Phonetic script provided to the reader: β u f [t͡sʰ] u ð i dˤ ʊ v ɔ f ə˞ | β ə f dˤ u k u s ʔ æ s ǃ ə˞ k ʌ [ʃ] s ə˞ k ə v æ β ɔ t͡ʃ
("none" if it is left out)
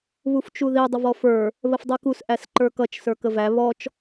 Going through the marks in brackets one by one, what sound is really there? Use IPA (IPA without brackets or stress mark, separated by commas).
t͡ʃ, t͡ʃ